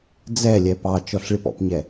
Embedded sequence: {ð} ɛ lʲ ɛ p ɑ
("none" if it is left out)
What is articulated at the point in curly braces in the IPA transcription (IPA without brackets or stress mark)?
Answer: d͡z